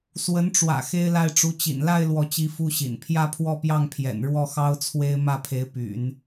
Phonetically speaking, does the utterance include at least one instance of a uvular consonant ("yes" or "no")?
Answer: no